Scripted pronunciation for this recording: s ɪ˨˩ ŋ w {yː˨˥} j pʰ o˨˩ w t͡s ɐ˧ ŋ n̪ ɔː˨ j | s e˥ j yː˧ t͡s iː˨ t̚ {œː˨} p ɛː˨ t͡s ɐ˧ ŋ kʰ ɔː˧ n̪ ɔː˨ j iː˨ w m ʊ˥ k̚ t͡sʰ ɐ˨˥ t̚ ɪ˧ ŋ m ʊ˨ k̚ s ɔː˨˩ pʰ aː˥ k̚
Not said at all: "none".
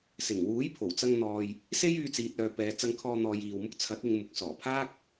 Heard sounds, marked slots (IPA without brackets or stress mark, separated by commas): uː˨˥, œː˨